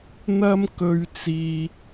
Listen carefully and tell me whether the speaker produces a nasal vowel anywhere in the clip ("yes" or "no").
no